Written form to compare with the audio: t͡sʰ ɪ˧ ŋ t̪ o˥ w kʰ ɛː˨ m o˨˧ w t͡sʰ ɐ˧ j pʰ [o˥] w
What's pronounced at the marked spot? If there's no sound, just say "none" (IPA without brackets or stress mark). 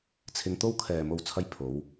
o˨˧